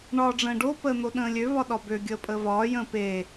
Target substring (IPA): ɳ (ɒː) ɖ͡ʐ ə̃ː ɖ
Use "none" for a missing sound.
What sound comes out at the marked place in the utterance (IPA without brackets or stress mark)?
ɒː